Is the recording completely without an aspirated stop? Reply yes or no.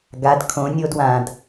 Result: no